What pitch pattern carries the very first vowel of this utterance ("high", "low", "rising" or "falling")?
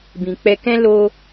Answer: low